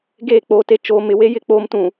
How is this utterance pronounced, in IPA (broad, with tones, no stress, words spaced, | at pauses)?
ɡeː˦˨k͡po˦te˦ t͡ʃoː˦ mɪ˨we˦jɪ˦˨ k͡poː˦mtũ˨